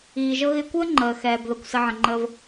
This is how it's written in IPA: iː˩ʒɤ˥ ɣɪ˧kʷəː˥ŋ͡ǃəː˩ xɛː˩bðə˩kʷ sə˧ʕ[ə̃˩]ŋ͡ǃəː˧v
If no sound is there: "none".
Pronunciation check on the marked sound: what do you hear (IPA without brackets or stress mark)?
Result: ə̃˩